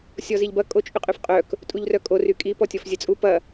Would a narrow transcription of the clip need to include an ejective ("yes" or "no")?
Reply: yes